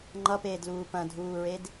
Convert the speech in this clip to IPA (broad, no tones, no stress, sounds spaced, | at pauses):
ŋ͡ǃ ʌ p eː d l uː p ɐ̃ dʱ uː ɹ e d